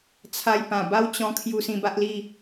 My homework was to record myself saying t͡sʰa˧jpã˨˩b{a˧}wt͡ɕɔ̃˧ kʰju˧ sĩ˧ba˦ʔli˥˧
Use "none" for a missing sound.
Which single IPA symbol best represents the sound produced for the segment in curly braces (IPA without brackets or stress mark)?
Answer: a˦